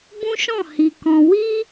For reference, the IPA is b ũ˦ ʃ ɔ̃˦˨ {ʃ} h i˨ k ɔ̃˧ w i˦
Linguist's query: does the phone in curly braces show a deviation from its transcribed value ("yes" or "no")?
yes